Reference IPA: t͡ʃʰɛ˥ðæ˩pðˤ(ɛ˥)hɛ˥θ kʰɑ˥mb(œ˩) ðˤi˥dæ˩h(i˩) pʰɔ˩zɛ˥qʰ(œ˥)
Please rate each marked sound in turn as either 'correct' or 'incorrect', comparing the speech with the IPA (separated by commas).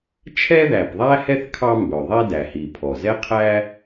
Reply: incorrect, correct, correct, incorrect